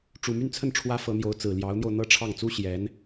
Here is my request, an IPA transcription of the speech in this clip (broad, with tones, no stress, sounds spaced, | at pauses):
ʈ͡ʂ u˨˩ m y˥˧ n t͡sʰ ə˥˩ n ʈ͡ʂʰ w ä˥ f ɤ˧˥ n̪ j o˧˥ ʊ̯ t͡s ɹ̩˨˩ l j ɑ˧˥ ʊ̯ n̪ j o˧ ʊ̯ n̪ ɤ˥˧ ʈ͡ʂʰ ɑ˥˩ ŋ t͡s u˥ ɕ j ɛ˧˥ n